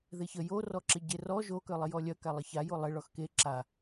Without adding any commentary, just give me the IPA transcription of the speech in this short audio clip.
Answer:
ðeçə jorɔǁɪ ɟerɔ ʒokœlˠɪ jɔlʲœ kalˠəçajo lˠɪ ɭɔxke ǁa

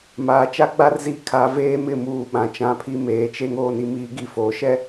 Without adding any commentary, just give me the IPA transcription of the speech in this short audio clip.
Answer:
maː˨t͡ʃa˦ɡ͡ba˦rzi˦˨ kʰa˨˦veː˦mɪ˦˨muː˨ ɓã˨t͡ʃã˨˦pʰi˦ meː˨t͡ʃe˦ŋ oː˦ni˦miː˦ ɡi˦˨ foː˨ʃɛ˦

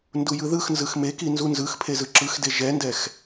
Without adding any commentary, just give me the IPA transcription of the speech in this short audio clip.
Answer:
ndujɯðɯxnzɯx meki nzunzɯxpʰe zɯǁɯxde ʒɛndɛx

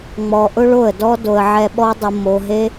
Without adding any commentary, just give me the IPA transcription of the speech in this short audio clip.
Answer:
ŋ͡mɔ˨ʔʊ˦ ɭo˦˨ə̯dɔ˦ do˨ə̯ ʕɛ˧ɓɔ˦dˤʊ˧ mo˧ɦe˦

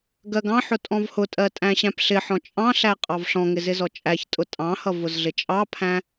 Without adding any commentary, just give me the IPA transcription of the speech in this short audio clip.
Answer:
ɡɜɡɑ̃ħʊ tʼɔ̃vhʊtʼɜ tʼæ̃ɕæ̃pɬɪħɔ̃ t͡ʃʼɑ̃ɬæ qʼɑvɬɔ̃ŋɪ zɪzɔt͡ʃʼæçtʼʊ tʼɑ̃hʌ vʊzɮɪt͡ʃʼɑpʰæ̃

